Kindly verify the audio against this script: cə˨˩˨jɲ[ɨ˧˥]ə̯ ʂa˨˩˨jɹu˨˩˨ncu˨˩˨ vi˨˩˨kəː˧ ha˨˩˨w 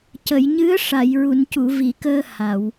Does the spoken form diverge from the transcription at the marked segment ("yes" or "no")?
no